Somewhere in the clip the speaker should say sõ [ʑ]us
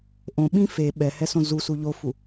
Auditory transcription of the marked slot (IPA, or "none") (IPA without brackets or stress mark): z